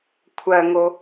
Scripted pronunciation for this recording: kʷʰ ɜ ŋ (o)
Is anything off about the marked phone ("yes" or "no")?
no